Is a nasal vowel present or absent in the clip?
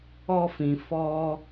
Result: present